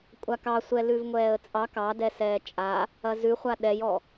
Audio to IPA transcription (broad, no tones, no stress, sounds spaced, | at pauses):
kʷʼ a k ɑ sʷ ɛ l ʉ v ŋʷ ɛː ə̯ t͡sʼ ɑ k ɑ d ɛ s ɛː t͡ʃʼ a | ɐ z ʉ χʷ a ɗ ɛ j ɔ